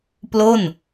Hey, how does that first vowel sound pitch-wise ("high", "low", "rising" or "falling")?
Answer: falling